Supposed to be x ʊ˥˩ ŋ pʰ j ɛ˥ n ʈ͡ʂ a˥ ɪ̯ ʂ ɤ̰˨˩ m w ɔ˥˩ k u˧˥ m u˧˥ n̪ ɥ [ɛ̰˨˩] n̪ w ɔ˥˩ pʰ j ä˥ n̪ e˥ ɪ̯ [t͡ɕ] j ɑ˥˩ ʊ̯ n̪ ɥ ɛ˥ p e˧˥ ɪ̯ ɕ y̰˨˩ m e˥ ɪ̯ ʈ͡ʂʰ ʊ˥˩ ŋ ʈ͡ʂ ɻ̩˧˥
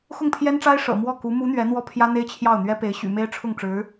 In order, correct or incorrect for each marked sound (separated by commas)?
incorrect, incorrect